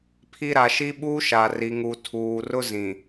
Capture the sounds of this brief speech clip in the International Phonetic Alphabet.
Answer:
pʰ i˦ ɾ a˨ ʃ i˦ ɓ uː˦ ʃ a˨ r i˨ ŋ u˨ tʰ uː˨ r ʊ˦ z ĩ˨

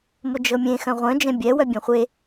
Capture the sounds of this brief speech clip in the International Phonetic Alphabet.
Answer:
m ʊ d͡ʒ ɤ mʲ ẽ x œ̃ ʁʷ œ̃ d͡ʒ ɛ̃ bʲ ɛ w œ bʲ ɛ̃ χʷ e

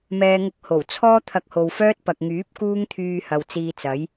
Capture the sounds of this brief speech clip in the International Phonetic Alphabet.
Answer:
m ɛː˨ ŋ ʊ˨˥ k̚ h o˨˩ w t͡sʰ ɔː˥ t̪ʰ ɐ˧ k̚ h o˨ w f œː˥ t̚ p ɐ˨ k̚ ŋ yː˨˥ p̚ k uː˥ ŋ t̪ʰ yː˧ h ɐ˨ w t͡s iː˧ t͡s ɐ˨˥ j

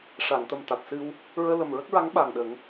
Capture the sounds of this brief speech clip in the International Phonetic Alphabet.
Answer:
ʂ a˨˩˨ ŋ t̪ ə˨˩ m t̪ a˨˩ t̚ s ɨ˧ w | ɹ əː˧ l ə˨˩ m ɹ ə˦˥ k̚ ɹ a˧˥ ŋ ɓ a˨˩ ŋ ɗ ə˨˩˦ ŋ

